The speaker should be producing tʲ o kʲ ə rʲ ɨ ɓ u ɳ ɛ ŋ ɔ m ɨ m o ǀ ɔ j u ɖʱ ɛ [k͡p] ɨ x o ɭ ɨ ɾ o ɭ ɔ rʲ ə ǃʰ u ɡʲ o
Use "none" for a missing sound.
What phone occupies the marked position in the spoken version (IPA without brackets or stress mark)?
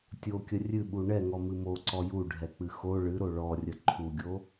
k͡p